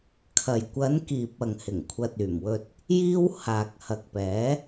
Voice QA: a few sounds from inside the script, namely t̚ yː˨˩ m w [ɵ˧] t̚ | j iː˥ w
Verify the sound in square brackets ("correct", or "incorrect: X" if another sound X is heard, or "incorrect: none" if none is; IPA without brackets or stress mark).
correct